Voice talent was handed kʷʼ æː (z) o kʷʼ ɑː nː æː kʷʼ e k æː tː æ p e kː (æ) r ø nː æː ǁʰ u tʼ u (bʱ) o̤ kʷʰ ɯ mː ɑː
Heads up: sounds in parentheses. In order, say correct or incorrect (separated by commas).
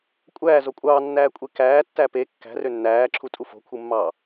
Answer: correct, incorrect, incorrect